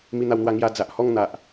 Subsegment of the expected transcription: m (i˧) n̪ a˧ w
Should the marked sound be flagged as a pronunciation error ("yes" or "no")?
no